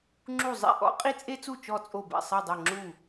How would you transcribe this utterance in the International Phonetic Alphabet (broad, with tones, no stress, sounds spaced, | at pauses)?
ŋ͡ǁ u˥˩ zˤ ḭ˥˩ ʔ ɔ̰˥ qʼ i˥ t͡sʼ e˥ t͡s u˥˩ t͡ʃ ɔ˥˩ t͡sʼ o˥˩ b ɛ̰˥˩ sˤ ɤ˥˩ dˤ ɤ˥˩ ŋ͡ǁ u˥˩